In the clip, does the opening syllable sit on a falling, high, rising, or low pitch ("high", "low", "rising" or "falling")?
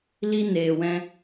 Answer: high